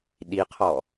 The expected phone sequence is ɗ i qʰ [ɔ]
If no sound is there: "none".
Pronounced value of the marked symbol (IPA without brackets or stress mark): ɔ